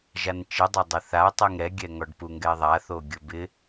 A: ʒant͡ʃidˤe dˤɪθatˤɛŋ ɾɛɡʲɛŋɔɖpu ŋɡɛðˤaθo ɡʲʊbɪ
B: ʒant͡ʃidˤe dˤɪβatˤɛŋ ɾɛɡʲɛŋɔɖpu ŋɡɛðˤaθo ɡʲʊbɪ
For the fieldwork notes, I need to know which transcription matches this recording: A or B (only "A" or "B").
A